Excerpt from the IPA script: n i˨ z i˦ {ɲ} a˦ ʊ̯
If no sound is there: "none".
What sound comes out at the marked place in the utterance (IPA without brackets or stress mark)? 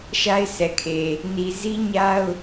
ɲ